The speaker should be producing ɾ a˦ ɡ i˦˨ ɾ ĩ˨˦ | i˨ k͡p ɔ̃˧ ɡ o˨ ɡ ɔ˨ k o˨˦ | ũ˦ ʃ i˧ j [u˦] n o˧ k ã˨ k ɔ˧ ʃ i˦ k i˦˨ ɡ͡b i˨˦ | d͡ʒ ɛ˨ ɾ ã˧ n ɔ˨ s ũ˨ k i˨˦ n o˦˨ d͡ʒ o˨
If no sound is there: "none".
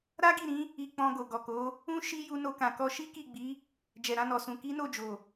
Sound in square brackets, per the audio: u˧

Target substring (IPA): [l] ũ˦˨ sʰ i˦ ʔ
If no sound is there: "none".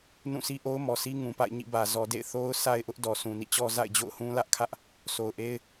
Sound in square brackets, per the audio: n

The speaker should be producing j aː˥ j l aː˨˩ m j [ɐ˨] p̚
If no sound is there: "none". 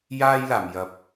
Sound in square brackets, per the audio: ɐ˨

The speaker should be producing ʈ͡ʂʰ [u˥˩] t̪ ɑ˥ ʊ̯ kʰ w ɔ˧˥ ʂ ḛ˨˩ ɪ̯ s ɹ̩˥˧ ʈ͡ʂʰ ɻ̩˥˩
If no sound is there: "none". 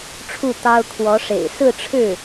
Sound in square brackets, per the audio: u˥˩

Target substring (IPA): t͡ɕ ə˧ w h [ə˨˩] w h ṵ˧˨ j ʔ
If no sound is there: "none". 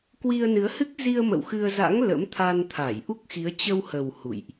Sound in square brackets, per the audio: ə˨˩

